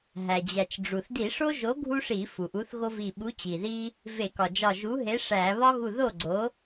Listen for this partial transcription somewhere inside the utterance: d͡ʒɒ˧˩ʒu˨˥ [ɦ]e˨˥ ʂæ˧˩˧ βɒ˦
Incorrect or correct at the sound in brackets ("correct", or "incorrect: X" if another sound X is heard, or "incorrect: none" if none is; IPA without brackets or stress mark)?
correct